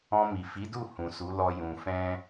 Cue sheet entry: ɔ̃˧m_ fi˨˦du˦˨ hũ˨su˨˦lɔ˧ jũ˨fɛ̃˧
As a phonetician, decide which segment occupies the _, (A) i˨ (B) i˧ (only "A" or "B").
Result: A